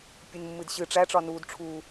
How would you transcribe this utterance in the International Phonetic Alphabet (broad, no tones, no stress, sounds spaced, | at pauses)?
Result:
pʲ ɨ n mː ɨ d ɕ ɨ ʈ͡ʂ æ ʈ͡ʂ ɒ n uː d ʈ͡ʂʰ uː